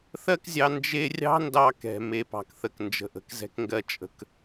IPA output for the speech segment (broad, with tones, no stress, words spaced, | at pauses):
θɜ˦kzʲɑ˧ nd͡ʒe˦ rʲɑ̤˦ndɑ˧kɛ̤˨ me˧pɑ̤˧kθə˧k nd͡ʒə̤˨ʔə̤˨kzɛ̤˧kŋɡɜ˧ t͡ʃʼə̤˦k